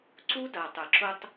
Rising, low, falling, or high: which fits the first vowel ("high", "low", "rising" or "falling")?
high